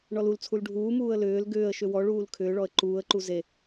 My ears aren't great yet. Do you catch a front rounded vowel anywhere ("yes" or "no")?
yes